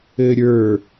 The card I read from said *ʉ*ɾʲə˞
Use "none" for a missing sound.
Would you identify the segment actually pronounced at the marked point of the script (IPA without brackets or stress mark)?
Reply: ɘ